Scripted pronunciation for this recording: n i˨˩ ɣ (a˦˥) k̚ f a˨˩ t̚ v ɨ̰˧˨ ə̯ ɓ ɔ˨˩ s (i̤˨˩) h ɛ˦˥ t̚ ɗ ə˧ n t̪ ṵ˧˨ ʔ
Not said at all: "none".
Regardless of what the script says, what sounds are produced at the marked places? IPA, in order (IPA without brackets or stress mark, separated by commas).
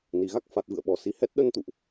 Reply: a˦˥, i˨˦